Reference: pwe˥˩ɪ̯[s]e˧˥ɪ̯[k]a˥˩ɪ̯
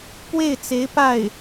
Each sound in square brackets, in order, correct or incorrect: incorrect: t͡s, incorrect: p

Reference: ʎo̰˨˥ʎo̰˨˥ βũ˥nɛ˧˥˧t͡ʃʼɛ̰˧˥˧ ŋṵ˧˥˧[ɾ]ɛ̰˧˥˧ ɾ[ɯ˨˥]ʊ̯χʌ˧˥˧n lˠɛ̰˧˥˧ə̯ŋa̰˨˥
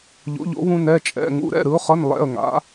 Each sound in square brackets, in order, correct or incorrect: correct, correct

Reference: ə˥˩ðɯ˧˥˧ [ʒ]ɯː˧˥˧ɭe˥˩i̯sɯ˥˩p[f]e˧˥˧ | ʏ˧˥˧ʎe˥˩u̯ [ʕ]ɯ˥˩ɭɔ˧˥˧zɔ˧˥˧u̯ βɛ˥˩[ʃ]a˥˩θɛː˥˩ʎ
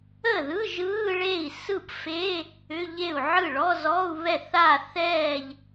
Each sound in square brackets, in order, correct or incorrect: correct, correct, correct, incorrect: θ

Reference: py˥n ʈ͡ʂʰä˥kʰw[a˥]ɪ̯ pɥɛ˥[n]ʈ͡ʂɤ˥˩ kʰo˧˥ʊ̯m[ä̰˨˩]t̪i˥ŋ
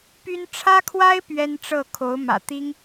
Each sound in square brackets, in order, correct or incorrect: correct, correct, correct

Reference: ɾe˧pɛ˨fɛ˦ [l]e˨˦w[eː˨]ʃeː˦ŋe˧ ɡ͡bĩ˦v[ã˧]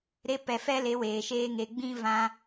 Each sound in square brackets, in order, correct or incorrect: correct, correct, correct

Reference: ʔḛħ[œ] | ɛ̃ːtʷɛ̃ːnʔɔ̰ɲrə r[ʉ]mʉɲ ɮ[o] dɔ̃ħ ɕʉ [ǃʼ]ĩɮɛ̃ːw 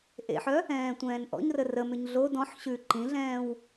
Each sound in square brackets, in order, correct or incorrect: correct, incorrect: ə, correct, incorrect: ǃ

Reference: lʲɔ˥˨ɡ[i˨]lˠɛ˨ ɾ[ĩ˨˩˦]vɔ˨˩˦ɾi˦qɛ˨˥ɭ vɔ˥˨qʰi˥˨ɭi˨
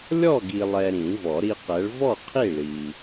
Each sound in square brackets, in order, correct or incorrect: correct, correct

